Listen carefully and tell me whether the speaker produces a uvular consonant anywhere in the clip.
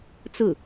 no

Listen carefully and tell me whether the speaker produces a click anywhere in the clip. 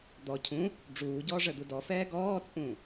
no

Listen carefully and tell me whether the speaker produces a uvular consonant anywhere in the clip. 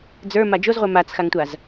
yes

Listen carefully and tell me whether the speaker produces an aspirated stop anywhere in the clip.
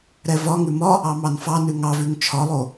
yes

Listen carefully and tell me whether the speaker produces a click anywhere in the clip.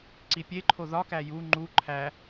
yes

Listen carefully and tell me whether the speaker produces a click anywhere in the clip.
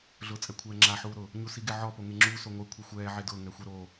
yes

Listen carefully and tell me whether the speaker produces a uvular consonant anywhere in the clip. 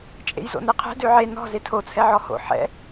yes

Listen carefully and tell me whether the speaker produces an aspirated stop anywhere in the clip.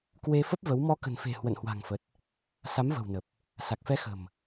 no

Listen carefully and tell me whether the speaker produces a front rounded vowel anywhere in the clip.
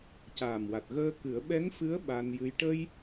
no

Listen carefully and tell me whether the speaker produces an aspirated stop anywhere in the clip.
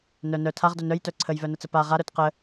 yes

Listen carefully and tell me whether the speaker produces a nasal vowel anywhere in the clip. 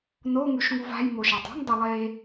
no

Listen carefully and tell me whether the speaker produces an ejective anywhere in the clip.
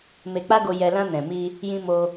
no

